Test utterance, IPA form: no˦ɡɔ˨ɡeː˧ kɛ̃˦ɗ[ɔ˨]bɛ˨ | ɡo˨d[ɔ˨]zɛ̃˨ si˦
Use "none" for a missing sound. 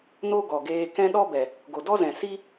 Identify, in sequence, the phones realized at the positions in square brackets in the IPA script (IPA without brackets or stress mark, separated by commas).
ɔ˦, ɔ˦